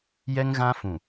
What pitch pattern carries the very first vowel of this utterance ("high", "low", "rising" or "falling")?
high